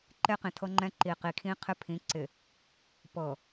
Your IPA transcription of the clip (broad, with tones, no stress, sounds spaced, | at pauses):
ǃ e˦ q ĩ˨ tʰ ɤ˦ ŋ͡ǃ ɛ̃˦ ǃ i˨ q i˨ kʰ ĩ˦ qʰ ɪ˦ pʰ ĩ˨˦ ǀ ɪ˨ | p ɤ˨